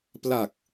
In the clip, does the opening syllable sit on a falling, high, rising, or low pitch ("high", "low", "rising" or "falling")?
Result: low